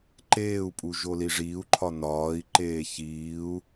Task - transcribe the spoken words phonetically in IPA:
ǃ eː u̯ pʼ u ʒ o l i ʐ iː u̯ ǃʰ ɒ n ɒː i̯ ǃ eː ç iː u̯

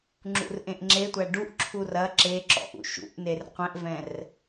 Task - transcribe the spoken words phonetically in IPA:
ŋ͡ǁ ṵ r ʔ ẽ ʔ ŋ͡ǁ e tʷ æ ɖ u ʔ ǁʰ u r ɐ ǁ e ǁ ɔ̰ ʔ ṵ ʃ ṵ ʔ n e r qʷ ɛ̃ ʔ v ɛ̃ r

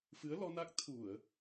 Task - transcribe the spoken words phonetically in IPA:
f ɨ˨˦ ə̯ l ɔ˧ n a˦˥ k̚ t̪ʰ u˧˩˨ ə̯

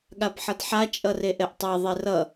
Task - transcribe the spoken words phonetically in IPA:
ɠ a b ħ ʌ d ħ a t͡ʃʼ ʌ r e ʔ ɛ ʔ tˤ ɛ ðˤ e r ʌ

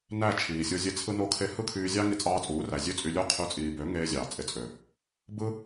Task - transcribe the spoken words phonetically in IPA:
n æ˦˨ t͡ʃʰ iː˨ sʲ o˧ zʲ e˧ t͡sʰ ɯ˦ n o˦ kʰ e˦ h ɯ˦ kʰ yː˧ zʲ ɑ˦ ŋ i˧ t͡sʼ ɑː˧ t͡sʼ uː˨˦ r æ˨ zʲ ø˦ t͡sʼ y˧ lʲ o˧ qʰ y˨˦ t͡sʼ iː˨ b ø˨˦ ŋ eː˧ zʲ ɑː˨ t͡sʼ e˨ t͡sʼ ø˨ | b ɯ˦

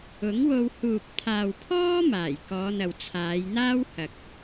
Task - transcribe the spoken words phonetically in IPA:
ʊ˨˥ ŋ w o˧ w h uː˨ p̚ t̪ʰ aː˨ w pʰ ɔː˥ m aː˨˩ j k ɔː˨˧ n̪ ɐ˨ w t͡sʰ aː˨˧ j n̪ aː˥ w h ɐ˨ k̚

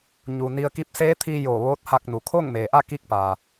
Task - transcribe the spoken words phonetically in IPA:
ɲ u˩ n i˧ ə̯ k i˧˥ p̚ s eː˧˥ t̪ʰ i˧ j o˧˩ ʋ oː˧˥ t̚ h a˧ k̚ n u˩ kʰ o˥˨ ŋ m eː˩ ʔ a˥˨ k i˥˨ k̚ p aː˩

